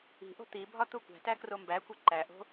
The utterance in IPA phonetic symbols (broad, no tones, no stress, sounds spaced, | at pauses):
i̤ ʔ o̤ t̪ i bʱ ɒ t̪ u kʷ æ̤ t æ k r o m b æ kʷ i ǃ æ ʔ o̤